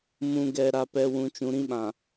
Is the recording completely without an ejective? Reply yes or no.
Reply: yes